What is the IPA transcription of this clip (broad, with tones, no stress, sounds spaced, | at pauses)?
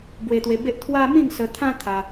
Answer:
b w e˧ t̪ w e˧ b e˦ ʔ t̪ʰ w a˦ m ĩ˥˧ ŋ s ə˧ t̪ʰ ã˦ t̪ʰ a˧